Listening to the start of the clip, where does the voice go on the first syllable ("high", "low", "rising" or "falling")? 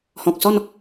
low